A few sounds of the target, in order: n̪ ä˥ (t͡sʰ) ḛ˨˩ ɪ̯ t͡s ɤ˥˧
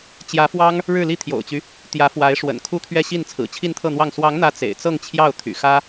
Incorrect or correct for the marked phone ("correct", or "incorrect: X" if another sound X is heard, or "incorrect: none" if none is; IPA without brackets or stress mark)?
incorrect: t͡s